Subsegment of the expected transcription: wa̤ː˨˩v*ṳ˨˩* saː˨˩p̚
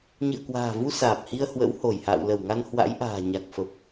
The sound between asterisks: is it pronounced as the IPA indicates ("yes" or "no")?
no